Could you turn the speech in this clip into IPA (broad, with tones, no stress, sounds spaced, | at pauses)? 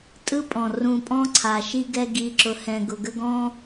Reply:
tʼ ɯ˦ pʼ ɔ̃˨ r ũ˧ pʼ ɔ̃˦ ǀʰ a˨ ʃ i˧ ɡ ɛ˧ ɡ i˨ ǁ ʊ˨ h ɛ̃˨ ɡ ʊ˨ ɡ ə˧ ɡ ɔ̃˧